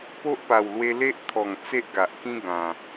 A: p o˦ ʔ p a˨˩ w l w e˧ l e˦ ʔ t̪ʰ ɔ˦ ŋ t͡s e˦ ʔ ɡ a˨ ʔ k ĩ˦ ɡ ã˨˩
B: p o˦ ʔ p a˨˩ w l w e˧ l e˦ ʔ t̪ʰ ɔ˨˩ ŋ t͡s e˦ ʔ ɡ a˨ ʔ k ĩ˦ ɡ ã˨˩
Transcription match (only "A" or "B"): B